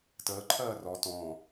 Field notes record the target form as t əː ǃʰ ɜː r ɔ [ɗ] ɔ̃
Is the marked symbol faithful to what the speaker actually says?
no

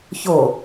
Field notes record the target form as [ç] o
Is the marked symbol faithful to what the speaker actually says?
yes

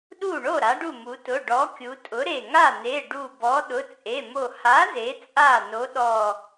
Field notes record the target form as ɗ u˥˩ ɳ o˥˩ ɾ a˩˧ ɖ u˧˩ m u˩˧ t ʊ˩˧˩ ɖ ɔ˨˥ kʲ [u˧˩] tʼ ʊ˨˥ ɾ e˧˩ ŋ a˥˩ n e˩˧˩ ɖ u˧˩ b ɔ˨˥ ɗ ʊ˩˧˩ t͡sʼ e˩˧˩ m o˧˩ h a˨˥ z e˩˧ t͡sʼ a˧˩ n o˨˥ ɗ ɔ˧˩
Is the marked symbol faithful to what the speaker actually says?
no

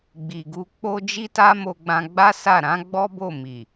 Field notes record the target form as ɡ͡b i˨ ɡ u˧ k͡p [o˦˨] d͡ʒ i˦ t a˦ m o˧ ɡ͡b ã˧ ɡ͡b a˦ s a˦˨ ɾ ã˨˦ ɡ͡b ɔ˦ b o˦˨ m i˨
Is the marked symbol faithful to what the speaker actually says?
no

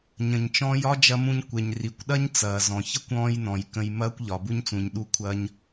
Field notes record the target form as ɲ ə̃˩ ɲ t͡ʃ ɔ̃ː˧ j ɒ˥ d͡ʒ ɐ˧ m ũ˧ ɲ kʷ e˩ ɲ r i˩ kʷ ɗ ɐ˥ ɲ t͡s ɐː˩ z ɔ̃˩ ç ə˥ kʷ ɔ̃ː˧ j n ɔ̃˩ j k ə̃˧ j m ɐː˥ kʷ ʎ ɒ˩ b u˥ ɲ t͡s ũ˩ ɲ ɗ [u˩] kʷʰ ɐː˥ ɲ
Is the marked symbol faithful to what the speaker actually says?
no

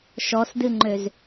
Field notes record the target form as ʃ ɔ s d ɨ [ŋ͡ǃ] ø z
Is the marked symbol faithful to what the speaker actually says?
yes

